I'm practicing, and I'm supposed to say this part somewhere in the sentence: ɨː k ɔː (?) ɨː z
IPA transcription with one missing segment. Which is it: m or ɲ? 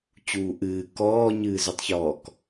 ɲ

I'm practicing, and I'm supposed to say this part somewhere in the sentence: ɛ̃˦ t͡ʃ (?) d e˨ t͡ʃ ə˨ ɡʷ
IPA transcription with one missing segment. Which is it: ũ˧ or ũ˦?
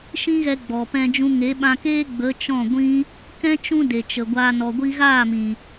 ũ˦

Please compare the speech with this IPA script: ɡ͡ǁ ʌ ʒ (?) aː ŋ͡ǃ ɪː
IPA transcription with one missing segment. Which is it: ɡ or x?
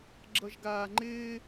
ɡ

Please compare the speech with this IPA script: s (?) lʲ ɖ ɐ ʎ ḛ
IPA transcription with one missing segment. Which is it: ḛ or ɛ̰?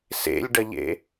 ḛ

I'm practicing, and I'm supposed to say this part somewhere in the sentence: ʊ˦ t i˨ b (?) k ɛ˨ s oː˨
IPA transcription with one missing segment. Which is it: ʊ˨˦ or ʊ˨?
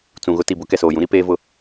ʊ˨˦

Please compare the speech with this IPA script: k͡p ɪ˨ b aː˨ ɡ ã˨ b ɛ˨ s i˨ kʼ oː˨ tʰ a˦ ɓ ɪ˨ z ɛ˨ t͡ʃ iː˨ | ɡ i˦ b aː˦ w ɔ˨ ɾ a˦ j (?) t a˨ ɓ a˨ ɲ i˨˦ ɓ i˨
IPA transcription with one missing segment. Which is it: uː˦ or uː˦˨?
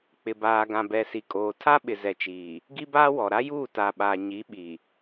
uː˦˨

